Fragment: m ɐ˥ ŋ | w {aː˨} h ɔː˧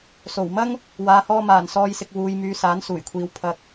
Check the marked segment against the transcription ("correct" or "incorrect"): correct